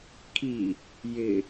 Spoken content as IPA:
kʰ i | j ɪ

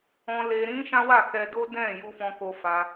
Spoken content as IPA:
ɔ̃˧ l e˧ ɾ ĩ˦ ʃ ã˦ w a˦˨ k ɛ˧ d o˦ d ɛ̃˦˨ j u˧ f ɔ̃˧ k o˧ f a˧

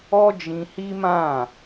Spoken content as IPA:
ɔ˦ d͡ʒ ĩ˧ h i˦ m ã˦˨

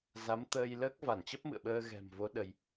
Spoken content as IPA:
z a˨˦ m t̪ əː˧ j l əː˦˥ k̚ v a˧˩ n t͡ɕ ə˦˥ p̚ m ɨ̰˧˨ ə̯ ɓ əː˧ ɣ ɛ̤˨˩ m v o˨˦ ɗ ə˧ j

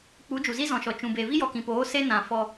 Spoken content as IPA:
k͡p u˨˦ d͡ʒ u˨ z i˦ z ɔ̃˨ ʃ ɔ˨ t͡ʃ ũ˨ b e˨ v i˦ j ɔ˨ k ĩ˨ p oː˨˦ s e˦ n ã˨ f ɔ˧

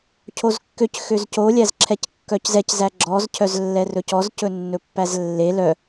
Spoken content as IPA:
cʰ o z kː ø c x ø z c o lʲ æ z ǁʰ ɛ c kː œ c z ɛ c z æ ɡ͡ǁ ɔ z cʰ œ z lː ɛ r ɵ c ɔ z c ɵ nː ɵ pː æ z lː e l œ

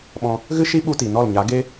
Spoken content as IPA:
ɓ ɔ̃˧ | ɣ ɨ˦ ʃ i˦ ɓ u˦ t i˨ n ɔ˦˨ l ɲ a˨˦ ɡ e˦

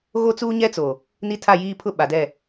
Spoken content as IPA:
ɣ o˦ t͡s uː˦ ɲ ɛ˦ t͡s o˨ | n i˦ tʰ a˦˨ j iː˦ pʰ ʊ˦ ɓ a˨ d ɛ˦˨

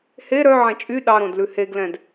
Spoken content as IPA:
h e ɾ œ ʕ ɛ̃ t͡ʃʼ y ɗ ɑ ɾ õ d l ʉ h e ɡ l ɛ̃ d

